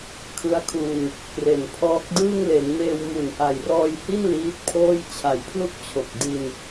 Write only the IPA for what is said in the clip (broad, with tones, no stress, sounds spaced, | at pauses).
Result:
kʰ ɯ˦˥ a̯ kʰ u˧ n | k r e˨˩ n pʰ ɔː˦˥ k̚ d ɯː˥˩ ŋ l e˩˦ n m eː˧ w m u˩˦ n ʔ a˨˩ j r ɔː˧ j h i˥˩ n l iː˦˥ t̚ pʰ oː˥˩ j t͡ɕʰ a˨˩ j pʰ l u˥˩ k̚ t͡ɕʰ o˨˩ k̚ d i˧ n